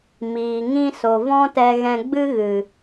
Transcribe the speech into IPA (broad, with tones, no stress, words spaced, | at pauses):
miː˨ŋĩ˧so˨ vɔ̃˦tɛ˧ɣɛ̃˧ ɡ͡bɨ˦ ɣɨ˨